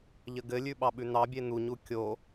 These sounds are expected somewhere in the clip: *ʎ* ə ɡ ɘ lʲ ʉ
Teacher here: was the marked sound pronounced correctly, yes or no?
yes